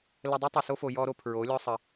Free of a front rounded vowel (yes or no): yes